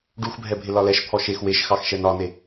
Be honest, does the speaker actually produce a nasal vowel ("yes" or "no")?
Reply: no